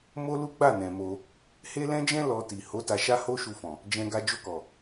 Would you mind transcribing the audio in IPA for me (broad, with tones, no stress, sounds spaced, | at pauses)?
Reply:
m o˦ l u˦ ɡ͡b a˦˨ n ɛ̃˨ m o˧ | h e˦ l ɛ̃˦ d͡ʒ ɛ̃˦ l ɔ˧ t i˨ h o˨˦ t a˧ ʃ a˦ h o˦ ʃ u˧ f ɔ̃˨ | d͡ʒ ɛ̃˧ ɡ a˧ d͡ʒ o˧ k ɔ˨